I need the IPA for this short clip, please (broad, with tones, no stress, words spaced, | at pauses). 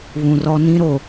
βũ˨rɔ˦ nĩ˦ɾo˨